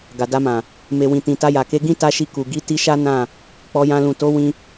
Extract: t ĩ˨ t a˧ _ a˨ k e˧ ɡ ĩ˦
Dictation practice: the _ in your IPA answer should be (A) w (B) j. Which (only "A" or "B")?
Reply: B